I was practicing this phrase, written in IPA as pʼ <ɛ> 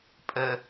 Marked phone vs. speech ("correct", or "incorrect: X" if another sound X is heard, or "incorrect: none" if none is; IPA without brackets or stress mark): incorrect: ə